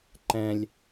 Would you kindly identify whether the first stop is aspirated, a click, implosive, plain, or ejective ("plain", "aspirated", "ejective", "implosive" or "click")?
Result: click